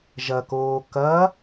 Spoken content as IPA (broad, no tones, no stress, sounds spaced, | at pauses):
ʒ ɐ k oː k ɐ